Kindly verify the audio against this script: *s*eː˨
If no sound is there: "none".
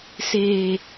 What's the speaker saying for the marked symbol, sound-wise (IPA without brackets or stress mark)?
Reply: s